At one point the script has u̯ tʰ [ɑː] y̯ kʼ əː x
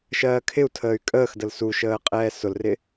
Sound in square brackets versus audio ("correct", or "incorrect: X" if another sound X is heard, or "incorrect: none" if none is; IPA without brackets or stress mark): incorrect: əː